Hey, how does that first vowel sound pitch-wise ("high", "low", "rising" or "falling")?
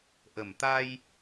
low